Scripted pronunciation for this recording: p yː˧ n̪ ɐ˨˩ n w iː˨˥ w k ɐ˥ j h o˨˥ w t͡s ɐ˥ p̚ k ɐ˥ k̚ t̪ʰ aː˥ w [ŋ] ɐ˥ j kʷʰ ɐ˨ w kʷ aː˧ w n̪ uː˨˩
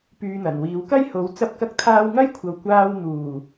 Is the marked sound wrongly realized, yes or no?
no